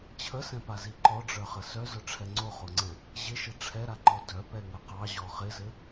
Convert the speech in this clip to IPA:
t͡ɕʰ ə s ɛ̃ p a z i ǃ ɔ ɖ͡ʐ œ χ ə s œ z œ ʈ͡ʂʰ ɛ ŋ͡ǀ o χ o ŋ͡ǀ ɛ̃ | ʑ ɪ ʃ ɪ ʈ͡ʂʰ ɛ ɾ a ǃ ɔ d œ p ɛ ŋ ə q ɑ ʑ ɔ χ ɪ z ɘ

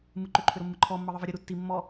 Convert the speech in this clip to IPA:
m ɯ ǃ ʏ ǃʰ ʏ ɾ o mː ɯ ǃʰ ɔ mː ɤ ðˤ ɯ v ɤ ɾʲ ə ɾ u tː i mː ɔ

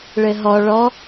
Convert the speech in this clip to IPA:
ɭ ɘ ɦ ɔ ɭ ɔ

